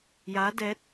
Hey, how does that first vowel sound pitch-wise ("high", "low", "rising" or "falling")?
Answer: rising